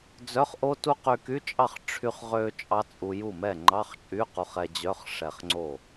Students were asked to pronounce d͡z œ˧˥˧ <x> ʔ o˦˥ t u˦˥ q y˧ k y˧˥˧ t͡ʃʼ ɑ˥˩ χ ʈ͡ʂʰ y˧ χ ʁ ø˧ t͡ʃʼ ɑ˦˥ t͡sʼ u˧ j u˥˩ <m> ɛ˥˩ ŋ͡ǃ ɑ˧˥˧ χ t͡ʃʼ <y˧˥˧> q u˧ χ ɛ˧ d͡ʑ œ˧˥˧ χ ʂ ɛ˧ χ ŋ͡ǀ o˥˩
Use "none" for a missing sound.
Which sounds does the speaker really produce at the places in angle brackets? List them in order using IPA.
χ, m, y˧˥˧

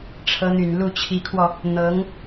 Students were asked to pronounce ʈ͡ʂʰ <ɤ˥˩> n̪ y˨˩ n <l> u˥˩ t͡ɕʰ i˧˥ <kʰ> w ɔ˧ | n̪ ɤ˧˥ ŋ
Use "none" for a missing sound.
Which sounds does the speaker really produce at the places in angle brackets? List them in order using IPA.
ɤ˧˥, l, kʰ

